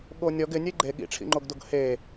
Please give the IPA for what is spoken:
ɠ o nʲ ɔ ɡ ɪ nʲ e ɡ͡ǃ e ɠ ḭ ʈ͡ʂʰ ḭ ŋ͡ǃ o ɡ d o ɡ h e

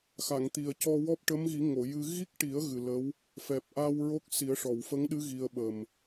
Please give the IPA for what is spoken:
x a˨˩˨ ŋ t̪ i˨˩ ə̯ c ɔ˧ w ɔ˦˥ p̚ ʈ ə˧˥ m ɣ i˨˩˦ ŋ o˨˩˨ j ɨ˧ ɣ i˦˥ k̚ ʈ i˨˩˦ ə̯ ɣ ɨ˨˩ l ə˧˥ w | f ɛ˨˩ p̚ ʔ a˧ w ɹ o˦˥ k̚ s i˨˩˦ ə̯ ʂ ɔ˨˩˨ w f ə˧˥ ŋ ɗ ɨ˧˥ ɣ i˧ ə̯ ɓ ə˨˩ m

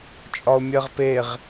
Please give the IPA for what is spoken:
t͡ʃʼ ɒ o̯ mʲ ɜ ʁ p e ʁ

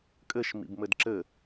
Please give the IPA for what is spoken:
kʼ ɘ ʃ m ḭ b m ɘ d ǁ ɘ

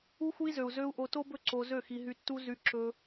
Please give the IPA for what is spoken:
u˧ x u˧ i̯ z ø˨ u̯ z ø˧ u̯ ʔ o˧ t o˦ b ɵ˦ ǀ o˧ z ø˦˨ x i˧ ɦ y˧ tː u˦ z y˧ ǁ ɵ˦

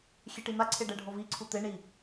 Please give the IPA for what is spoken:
xʲ e ʈ i n̪ a ǀʰ e ɖ ɛ ɖʱ o v i ǀʰ u t̪ e ɳ i

